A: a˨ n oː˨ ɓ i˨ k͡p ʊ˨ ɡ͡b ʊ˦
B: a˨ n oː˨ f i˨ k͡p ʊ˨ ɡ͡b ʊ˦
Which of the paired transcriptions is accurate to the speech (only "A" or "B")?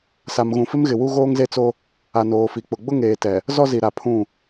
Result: B